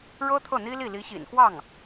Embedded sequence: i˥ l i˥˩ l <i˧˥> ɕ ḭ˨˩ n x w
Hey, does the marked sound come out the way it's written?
yes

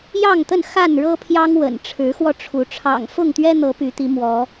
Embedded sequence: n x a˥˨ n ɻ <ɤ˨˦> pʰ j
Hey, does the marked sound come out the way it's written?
no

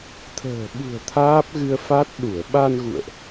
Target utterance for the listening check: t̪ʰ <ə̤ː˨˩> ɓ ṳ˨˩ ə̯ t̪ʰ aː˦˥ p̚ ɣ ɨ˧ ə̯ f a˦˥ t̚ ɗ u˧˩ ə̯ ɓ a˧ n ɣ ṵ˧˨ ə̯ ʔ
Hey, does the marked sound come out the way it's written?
yes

